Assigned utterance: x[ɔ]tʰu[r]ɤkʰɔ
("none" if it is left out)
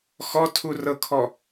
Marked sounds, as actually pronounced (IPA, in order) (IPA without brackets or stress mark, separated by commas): ɔ, r